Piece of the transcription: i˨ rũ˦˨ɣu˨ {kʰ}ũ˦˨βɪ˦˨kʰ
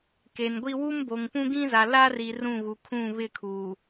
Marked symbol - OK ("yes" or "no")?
yes